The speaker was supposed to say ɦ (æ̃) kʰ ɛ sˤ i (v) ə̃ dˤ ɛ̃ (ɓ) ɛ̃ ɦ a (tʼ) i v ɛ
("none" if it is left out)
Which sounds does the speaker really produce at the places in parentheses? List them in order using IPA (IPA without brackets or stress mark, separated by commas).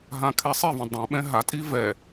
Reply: ã, v, ɓ, tʼ